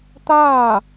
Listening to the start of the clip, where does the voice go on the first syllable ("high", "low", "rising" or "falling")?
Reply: falling